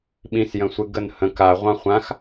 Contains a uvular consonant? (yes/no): yes